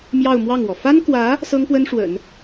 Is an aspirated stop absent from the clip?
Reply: yes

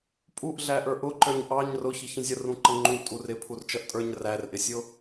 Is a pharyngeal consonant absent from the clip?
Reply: yes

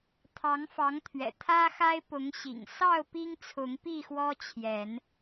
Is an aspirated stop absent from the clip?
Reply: no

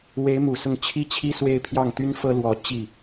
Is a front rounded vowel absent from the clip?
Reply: no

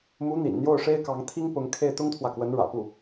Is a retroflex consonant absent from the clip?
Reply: no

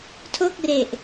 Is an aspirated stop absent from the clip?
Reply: no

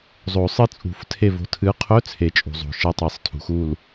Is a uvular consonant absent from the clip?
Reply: no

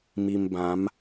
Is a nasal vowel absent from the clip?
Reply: no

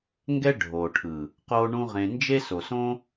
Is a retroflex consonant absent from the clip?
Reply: no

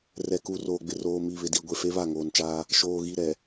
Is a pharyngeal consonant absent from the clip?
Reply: yes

